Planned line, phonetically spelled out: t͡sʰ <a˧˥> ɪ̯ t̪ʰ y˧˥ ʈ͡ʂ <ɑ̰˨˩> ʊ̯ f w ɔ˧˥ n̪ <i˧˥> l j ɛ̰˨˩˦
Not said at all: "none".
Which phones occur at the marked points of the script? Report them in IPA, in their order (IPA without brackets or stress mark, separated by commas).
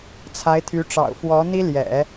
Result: a˧˥, ɑ̰˨˩, i˥